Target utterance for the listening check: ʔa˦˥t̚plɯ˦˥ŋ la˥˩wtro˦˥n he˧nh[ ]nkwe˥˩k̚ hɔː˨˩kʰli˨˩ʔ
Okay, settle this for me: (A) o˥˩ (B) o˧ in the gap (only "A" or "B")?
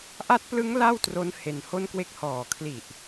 A